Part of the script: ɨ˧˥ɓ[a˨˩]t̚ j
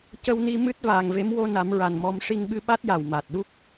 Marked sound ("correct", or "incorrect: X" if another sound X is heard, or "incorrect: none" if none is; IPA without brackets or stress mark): incorrect: a˦˥